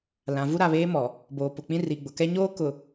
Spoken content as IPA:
l ã˨ v u˦ ɾ a˨ β eː˦ m ɔ˨ | b oː˨ p ʊ˨ k͡p ĩ˦ r i˨ ɡ͡b ʊ˨ k ɛ˦ ɲ oː˦ k ʊ˨

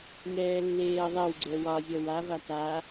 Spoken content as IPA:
ŋ ɛː lː eː ɐ̯ ðˤ ɛ w ɡ͡ǀ ɛ w ɒ zʲ ʌ w a v a t a

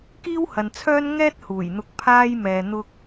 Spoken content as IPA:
k iː˥ w h ɐ˨ n t͡sʰ œː˥ n ŋ ɛː˥ t̚ h uː˨˩ j n̪ ʊ˨˥ k̚ pʰ aː˥ j m ɛː˨ n̪ ʊ˧ k̚

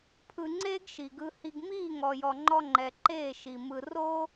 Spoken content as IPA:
pʰ ɯ˧ ŋ͡ǀ eː˦ ɡ ʃ i˨ ɡ ɯ˧ h i˧ ɡ m iː˦˨ ŋ ɔ˨ j ɔ˨ ŋ͡ǃ ɔ˧ ŋ͡ǃ ɛ˨ ǃ eː˦˨ ʃ i˨ m ɯ˨ r o˦

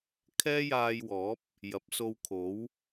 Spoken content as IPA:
kʰ ɛː˥ j aː˧ j w ɔː˨˥ p̚ | j ɐ˨˥ p̚ s o˧ w kʰ o˨˥ w

